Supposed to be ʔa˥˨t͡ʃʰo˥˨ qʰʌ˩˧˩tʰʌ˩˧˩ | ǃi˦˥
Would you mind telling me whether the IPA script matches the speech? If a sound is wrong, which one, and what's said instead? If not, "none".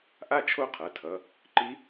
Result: none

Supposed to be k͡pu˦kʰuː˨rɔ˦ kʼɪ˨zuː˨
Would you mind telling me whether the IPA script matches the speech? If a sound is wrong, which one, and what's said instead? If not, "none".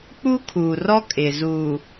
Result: none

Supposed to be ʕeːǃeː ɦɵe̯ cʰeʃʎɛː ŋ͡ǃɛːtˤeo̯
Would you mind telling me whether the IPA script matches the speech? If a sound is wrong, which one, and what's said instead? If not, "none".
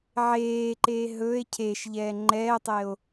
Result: none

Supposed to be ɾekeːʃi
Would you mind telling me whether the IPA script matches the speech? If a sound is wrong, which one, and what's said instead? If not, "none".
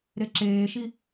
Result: k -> ǁ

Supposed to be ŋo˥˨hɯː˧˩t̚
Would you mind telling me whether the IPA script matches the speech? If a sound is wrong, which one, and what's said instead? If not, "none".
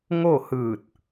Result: none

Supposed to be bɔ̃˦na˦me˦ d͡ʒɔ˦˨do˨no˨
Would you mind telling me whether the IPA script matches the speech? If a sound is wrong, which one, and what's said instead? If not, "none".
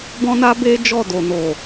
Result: m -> b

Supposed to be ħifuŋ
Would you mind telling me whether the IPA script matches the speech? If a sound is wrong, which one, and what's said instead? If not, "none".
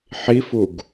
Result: ŋ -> ɡ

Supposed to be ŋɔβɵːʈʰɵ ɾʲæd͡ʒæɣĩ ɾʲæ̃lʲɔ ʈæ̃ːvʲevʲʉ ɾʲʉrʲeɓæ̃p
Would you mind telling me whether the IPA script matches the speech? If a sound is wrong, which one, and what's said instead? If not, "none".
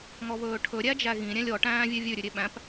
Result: rʲ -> ɾʲ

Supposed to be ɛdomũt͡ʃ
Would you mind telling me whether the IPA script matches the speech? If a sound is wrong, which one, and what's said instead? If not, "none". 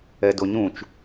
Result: m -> ɲ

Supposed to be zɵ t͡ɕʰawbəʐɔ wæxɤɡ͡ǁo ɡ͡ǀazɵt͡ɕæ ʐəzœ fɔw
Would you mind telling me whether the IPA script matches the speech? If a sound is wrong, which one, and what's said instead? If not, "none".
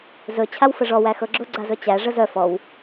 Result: b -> f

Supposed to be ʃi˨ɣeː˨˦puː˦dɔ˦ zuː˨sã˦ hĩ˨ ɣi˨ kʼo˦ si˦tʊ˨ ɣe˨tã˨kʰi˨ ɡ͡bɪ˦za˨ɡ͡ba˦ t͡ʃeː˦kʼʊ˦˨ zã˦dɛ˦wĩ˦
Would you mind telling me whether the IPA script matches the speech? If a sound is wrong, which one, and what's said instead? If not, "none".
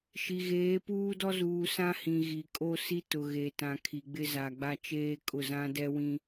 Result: none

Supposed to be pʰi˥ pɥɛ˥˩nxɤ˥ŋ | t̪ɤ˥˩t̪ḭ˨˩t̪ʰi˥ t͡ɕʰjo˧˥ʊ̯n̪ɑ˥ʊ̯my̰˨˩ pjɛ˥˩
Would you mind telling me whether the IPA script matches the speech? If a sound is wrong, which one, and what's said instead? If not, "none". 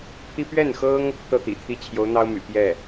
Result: none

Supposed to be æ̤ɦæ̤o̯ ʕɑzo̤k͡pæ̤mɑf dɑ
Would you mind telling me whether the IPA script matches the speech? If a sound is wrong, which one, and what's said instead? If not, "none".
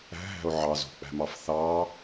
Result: d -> θ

